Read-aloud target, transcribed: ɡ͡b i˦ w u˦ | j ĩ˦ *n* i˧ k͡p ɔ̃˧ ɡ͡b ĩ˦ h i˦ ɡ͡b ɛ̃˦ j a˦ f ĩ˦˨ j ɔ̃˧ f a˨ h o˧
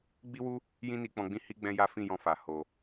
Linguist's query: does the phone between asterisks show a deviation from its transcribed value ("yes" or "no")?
no